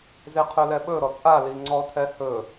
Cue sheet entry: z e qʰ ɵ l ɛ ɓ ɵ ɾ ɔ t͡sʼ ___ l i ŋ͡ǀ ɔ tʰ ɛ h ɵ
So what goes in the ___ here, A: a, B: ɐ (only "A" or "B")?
A